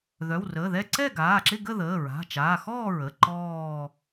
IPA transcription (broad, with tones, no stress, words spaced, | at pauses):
ðœ˩˧˩wrəː˩˧˩ðɛ˥˧ ǀɛ˥˧ɡaː˩˧˩ǁɪ˥˧ɡə˥˧ ðəː˩˧˩ ɹa̤˩˧˩t͡ʃaː˩˧˩ xɔː˥˧ɹə˩˧˩ ǃɔː˥˧